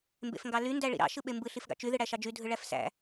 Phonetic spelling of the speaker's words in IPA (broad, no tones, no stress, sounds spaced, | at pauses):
m b ḛ f ŋ ɡ ɑ l y n d æ ɭ ḭ ɾ ɑ̰ ʃ ɯ ɓ e m b ɯ ɬ i f ɡ ɑ̰ t͡ʃ y ð ɯ ɽ æ ʃ ɑ d͡ʒ y dʱ ɯ ɭ æ f s æ̰